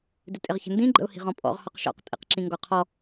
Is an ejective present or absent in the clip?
present